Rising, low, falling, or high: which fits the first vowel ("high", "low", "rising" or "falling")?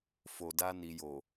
low